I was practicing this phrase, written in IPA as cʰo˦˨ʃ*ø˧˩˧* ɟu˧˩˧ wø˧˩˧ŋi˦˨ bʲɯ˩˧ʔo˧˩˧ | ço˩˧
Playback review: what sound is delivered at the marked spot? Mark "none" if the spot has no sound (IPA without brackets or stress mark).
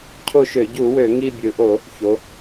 ø˧˩˧